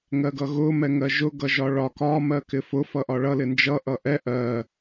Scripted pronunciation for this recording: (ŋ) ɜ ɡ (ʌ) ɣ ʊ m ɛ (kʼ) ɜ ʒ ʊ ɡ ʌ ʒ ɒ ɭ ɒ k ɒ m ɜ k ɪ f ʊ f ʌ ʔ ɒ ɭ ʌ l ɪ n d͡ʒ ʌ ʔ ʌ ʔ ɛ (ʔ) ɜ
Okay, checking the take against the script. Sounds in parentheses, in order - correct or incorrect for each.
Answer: correct, correct, incorrect: ŋ, correct

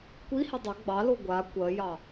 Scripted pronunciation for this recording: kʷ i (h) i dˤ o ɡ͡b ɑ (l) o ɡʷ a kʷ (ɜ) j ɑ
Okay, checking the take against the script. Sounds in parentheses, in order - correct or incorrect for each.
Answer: correct, correct, correct

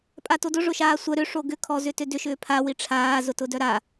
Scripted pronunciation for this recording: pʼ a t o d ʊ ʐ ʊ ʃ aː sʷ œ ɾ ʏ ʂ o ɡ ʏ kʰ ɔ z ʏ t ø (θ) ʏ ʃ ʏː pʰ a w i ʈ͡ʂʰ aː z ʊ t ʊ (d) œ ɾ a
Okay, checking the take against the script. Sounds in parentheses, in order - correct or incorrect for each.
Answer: incorrect: d, correct

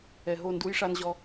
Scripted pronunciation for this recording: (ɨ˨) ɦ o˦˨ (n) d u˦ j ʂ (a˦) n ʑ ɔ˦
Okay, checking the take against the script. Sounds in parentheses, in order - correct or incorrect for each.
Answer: incorrect: ɛ˨, correct, correct

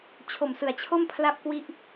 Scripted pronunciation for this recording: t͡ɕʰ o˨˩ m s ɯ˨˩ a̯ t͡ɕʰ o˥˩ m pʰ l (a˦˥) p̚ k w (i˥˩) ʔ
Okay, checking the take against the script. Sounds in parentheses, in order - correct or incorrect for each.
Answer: incorrect: a˥˩, correct

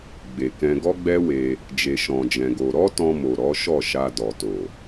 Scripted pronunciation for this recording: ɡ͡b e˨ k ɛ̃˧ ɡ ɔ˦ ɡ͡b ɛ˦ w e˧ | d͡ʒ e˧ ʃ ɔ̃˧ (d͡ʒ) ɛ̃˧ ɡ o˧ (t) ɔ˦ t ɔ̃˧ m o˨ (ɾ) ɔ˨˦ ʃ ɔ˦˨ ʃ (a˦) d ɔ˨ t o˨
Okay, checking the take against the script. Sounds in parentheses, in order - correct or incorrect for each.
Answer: correct, incorrect: ɾ, correct, incorrect: a˧

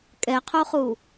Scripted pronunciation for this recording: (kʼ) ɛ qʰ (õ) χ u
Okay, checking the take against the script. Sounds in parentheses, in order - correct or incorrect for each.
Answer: correct, incorrect: o

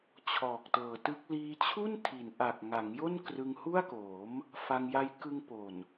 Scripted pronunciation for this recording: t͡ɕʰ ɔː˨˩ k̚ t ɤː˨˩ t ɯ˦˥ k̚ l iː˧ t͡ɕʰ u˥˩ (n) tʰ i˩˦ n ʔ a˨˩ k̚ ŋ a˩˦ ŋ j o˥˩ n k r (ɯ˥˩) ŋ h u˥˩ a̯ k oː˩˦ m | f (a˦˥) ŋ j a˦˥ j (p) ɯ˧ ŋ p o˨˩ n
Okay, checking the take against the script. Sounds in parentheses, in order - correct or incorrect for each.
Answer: correct, incorrect: ɯ˧, incorrect: a˧, incorrect: k

